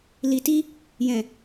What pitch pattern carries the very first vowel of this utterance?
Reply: low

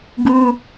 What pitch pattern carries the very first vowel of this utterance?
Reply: high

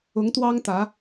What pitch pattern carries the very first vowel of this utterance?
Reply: rising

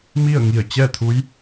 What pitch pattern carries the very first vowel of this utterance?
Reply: falling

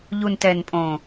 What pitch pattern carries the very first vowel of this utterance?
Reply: low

